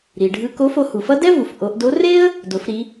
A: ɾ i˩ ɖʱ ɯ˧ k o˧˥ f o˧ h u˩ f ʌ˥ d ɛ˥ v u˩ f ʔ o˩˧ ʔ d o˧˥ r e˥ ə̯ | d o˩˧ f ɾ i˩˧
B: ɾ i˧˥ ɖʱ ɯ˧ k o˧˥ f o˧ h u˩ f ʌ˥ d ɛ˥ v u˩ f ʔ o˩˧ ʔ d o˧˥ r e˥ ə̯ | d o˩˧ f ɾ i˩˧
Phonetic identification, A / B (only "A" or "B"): A